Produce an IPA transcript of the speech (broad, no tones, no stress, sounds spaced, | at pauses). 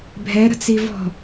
bʱ ɛ ɾ ə̤ t͡s i v ɔ̤